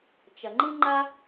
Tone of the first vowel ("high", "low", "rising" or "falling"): low